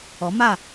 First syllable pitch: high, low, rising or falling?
rising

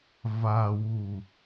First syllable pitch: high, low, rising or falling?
low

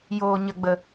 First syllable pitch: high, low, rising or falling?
low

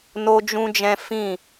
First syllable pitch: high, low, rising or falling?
high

